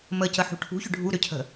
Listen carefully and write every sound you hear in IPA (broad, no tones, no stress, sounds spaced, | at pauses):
m ə c ə ħ ṳ ʈʰ ṳ ç ʏ ɖʱ u ɾ ʏ cʰ ə̤